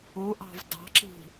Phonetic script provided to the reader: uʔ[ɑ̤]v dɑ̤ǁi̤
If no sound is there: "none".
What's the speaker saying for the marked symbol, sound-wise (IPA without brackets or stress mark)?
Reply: ɑ̤